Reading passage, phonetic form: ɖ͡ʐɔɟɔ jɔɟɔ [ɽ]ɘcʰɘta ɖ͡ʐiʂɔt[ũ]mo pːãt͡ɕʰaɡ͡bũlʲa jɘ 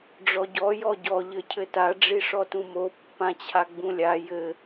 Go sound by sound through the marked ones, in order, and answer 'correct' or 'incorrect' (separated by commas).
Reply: incorrect, correct